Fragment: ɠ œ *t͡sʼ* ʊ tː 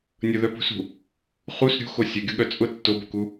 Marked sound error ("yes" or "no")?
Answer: no